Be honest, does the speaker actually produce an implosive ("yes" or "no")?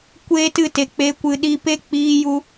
yes